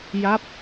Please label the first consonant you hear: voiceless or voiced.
voiced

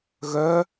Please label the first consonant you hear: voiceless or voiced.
voiced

